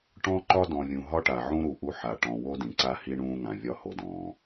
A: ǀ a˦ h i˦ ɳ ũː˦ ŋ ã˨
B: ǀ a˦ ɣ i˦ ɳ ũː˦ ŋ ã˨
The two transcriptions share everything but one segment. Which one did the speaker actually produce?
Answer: A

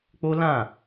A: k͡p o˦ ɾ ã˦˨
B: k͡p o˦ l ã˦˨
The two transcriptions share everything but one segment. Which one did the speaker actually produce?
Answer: B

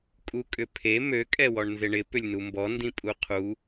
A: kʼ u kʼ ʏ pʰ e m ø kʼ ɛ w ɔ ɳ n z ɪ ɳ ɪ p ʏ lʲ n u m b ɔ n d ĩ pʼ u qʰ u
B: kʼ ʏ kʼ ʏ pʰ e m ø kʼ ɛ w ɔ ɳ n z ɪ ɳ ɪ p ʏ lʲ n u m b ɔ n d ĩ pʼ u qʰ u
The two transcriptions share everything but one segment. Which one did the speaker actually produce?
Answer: A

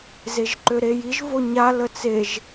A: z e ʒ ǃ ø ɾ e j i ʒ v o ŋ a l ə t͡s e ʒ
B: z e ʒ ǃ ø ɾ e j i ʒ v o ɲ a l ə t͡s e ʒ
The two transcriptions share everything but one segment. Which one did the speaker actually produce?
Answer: B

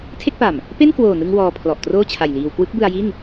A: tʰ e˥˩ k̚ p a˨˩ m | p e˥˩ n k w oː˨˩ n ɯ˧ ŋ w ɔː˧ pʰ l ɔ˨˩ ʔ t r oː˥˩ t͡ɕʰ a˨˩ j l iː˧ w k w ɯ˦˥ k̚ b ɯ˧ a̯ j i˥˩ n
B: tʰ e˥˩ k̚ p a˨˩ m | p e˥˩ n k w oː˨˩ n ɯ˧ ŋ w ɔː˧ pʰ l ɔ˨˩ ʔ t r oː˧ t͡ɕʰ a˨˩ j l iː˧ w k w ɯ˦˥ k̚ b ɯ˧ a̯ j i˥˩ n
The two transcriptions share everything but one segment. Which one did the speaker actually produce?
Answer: A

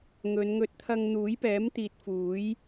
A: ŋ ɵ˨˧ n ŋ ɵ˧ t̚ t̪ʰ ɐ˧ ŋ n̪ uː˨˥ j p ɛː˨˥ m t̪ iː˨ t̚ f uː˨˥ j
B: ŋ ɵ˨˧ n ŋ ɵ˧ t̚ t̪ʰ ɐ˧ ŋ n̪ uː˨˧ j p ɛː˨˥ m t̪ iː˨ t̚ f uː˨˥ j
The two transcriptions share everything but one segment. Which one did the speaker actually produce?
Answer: A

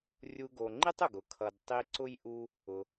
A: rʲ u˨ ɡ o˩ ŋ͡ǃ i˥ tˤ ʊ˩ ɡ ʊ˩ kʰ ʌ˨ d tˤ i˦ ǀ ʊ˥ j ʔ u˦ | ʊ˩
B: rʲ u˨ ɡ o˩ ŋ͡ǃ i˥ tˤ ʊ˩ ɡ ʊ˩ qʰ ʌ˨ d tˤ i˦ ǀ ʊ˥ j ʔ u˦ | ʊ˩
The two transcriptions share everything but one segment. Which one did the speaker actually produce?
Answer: A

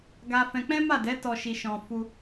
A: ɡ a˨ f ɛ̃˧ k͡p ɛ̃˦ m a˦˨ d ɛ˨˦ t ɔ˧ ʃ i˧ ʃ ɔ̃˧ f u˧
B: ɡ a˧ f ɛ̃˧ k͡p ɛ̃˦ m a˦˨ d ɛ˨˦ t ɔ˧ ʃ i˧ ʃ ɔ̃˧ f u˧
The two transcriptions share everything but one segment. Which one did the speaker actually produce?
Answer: B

